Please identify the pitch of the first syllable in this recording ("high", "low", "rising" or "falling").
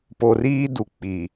low